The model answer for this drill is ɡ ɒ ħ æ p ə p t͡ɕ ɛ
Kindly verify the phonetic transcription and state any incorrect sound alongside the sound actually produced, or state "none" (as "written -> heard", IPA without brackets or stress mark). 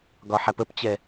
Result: none